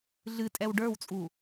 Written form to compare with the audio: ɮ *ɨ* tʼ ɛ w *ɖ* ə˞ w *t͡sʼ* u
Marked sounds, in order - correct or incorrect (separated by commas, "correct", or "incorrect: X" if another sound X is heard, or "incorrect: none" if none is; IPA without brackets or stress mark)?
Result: correct, correct, correct